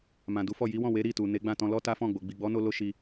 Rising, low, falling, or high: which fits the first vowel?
low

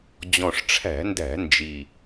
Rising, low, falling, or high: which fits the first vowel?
low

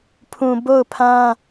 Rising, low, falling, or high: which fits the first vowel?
low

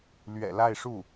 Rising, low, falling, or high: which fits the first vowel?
low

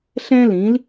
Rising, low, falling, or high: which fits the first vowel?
high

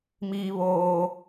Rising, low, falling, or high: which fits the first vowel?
high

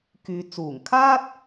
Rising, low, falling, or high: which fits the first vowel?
low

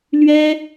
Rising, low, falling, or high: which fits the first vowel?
high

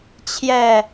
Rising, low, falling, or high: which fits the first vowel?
falling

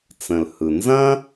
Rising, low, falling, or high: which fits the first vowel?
low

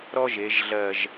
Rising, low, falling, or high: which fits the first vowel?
high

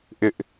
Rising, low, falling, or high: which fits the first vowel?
high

